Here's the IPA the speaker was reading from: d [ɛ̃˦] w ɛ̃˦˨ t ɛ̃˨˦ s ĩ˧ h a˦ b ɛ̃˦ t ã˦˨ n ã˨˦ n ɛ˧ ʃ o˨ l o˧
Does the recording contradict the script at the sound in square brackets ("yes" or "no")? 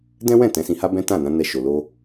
no